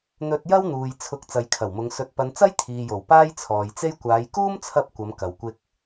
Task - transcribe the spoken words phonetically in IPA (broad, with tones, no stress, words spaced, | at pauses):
n̪ɵ˧t̚jɐ˥wn̪uː˨j t͡sʰʊ˨˥k̚ t͡sɐ˨˧jkʰɐ˨˩wmʊ˨˧ŋ sɵ˨t̚pɐ˨˧nt͡sɐ˥j t̪ʰiː˨jo˨˩w paː˥jt͡sʰɔː˨jt͡se˥j kʷaː˨˧jkuː˥mt͡sʰɐ˧p̚ kʷɐ˨˧mkɐ˨wkʷɪ˧k̚